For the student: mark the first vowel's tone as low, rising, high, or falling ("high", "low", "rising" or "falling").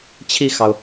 falling